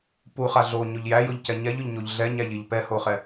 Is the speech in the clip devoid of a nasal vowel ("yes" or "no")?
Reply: yes